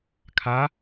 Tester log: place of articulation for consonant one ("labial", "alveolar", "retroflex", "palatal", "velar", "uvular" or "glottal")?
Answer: velar